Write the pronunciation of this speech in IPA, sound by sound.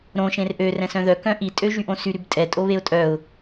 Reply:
ɾ õ ʃ ẽ r ʔ ø r ɛ̃ s œ̃ ð œ k œ̃ ʔ i tʼ ø ʒ y ʔ õ s y ɾ y b tʼ ɛ tʼ o β e ʊ̯ tʼ œ ʊ̯

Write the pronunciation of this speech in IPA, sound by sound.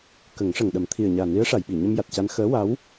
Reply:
k ə˨˩˦ ŋ ʂ ə˨˩ ŋ ɗ ə˨˩˦ m t̪ʰ i˨˩ ə̯ ɲ aː˨˩ n i˧˥ ə̯ ʂ a˨˩˨ j ɓ i˨˩˨ ɲ ə˧ m j a˨˩ t̚ c a˧ n x əː˧˥ w a˧˥ w

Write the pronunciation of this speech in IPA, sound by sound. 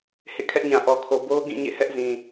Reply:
h ḛ˦˨ kʰ ɛ˦ ʔ ɲ ã˨ ʔ ɔ˨ kʰ o˨ b o˦ ʊ̯ ɡ ĩ˦˨ ɲ ḛ˦˨ h ɛ˦ ʔ z ĩ˨

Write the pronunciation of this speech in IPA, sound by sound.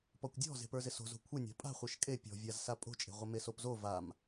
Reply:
p ɔ kʷ dʲ ɔ̤ z e̤ p ə˞ z ɪ s o̤ z o̤ kʷʰ ɪ nʲ a̤ pʼ a̤ χʷ ə˞ ʃ kʼ e pʲ ɔ̤ vʲ a z s a pʼ o̤ t͡ʃʼ e̤ ʁʷ ɪ m e s o p z o v a m

